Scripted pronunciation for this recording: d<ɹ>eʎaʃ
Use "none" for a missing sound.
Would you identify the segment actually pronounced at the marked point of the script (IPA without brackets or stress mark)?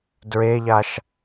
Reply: ɹ